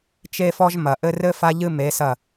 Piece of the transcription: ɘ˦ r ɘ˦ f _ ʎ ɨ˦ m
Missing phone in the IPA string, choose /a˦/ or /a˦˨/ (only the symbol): a˦